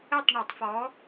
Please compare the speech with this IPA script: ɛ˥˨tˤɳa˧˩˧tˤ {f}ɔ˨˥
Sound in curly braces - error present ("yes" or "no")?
no